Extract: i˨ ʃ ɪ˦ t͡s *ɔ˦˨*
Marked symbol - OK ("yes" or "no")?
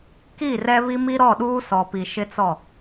yes